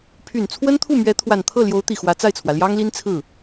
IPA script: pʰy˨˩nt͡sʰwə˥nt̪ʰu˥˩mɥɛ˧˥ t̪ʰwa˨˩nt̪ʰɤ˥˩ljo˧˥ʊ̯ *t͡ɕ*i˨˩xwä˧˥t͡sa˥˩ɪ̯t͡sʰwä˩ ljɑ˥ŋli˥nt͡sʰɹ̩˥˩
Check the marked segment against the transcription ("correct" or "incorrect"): incorrect